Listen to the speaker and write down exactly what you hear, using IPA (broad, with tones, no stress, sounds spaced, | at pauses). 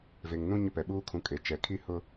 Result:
v e˨ ŋ n ũ˦ ɲ ʊ˦ p ɛ˨ ɓ uː˦ kʰ ũ˨ kʼ e˨ t͡ʃ ɛ˨ kʰ i˦ h ʊ˦